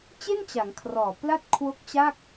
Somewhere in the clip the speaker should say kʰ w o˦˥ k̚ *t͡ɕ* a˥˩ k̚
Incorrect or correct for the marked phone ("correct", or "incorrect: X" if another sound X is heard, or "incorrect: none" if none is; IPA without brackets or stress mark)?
correct